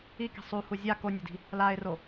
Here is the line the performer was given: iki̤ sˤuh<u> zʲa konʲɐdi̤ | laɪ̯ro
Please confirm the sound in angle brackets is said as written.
yes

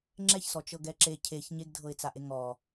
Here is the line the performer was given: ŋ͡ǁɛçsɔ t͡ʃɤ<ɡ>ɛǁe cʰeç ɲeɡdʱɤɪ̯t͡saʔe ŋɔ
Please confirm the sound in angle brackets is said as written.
yes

